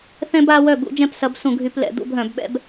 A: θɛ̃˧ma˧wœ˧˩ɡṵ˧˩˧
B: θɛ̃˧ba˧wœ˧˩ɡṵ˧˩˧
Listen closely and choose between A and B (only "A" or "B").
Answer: B